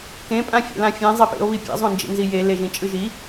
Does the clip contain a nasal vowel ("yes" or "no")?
yes